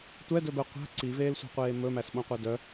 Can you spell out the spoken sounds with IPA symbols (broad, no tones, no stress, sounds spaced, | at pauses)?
tʷ ɛ d ɵ b ɛ qʷ æ̤ ǀ i v eː l sʷ i̤ qʷ eː m ɵ m æ s ɓ õ qʷ ɛ d œ